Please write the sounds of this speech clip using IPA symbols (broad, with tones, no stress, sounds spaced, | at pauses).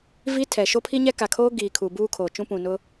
v i˦ tʰ ɛ˨ ʃ o˦ pʰ i˦ ɲ ɛ˦ k a˨ kʰ oː˦ ɡ iː˨ kʰ uː˨ b uː˦ kʰ oː˨ t͡ʃ ũ˦ p ũ˨ n ʊ˦